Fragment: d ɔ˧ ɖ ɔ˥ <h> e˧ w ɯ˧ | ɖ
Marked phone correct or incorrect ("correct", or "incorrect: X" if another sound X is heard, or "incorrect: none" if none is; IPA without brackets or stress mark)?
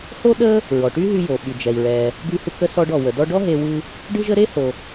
incorrect: ɦ